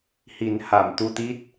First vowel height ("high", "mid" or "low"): high